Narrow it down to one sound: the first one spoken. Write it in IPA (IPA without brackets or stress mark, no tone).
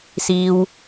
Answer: s